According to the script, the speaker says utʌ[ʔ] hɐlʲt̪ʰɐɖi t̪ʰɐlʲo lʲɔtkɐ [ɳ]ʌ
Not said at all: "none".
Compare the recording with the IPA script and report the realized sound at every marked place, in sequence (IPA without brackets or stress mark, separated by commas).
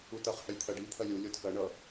χ, ɳ